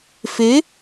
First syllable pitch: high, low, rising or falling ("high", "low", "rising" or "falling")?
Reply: rising